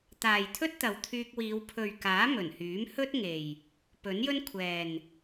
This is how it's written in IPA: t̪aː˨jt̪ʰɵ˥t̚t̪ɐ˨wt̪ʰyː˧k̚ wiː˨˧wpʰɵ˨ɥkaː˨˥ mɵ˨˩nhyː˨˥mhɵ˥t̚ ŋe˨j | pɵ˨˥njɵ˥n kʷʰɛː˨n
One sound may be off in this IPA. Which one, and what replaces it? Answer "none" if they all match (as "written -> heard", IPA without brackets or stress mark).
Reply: none